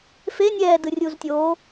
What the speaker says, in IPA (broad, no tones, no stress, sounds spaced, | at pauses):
f e nʲ ɛː d ɯ rʲ uː z tʲ oː